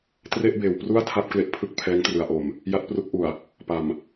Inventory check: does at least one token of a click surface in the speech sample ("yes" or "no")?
no